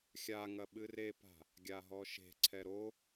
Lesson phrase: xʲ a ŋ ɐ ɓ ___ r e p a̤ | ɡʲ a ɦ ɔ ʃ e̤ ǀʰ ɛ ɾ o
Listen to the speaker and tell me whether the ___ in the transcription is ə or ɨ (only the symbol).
ɨ